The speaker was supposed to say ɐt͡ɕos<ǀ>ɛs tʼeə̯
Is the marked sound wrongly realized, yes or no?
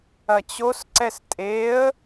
no